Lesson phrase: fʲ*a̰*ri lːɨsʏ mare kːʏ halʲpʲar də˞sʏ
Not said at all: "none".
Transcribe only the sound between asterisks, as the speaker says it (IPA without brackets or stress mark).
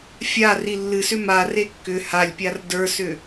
a